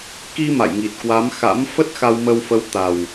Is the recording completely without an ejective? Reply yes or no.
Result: yes